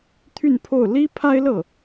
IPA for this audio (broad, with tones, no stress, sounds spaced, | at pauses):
t̪ʰ y˥˧ n pʰ o˥˩ ʊ̯ l i˥ pʰ a˥ ɪ̯ l ɤ˥˩